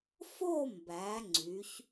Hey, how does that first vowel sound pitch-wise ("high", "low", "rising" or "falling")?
falling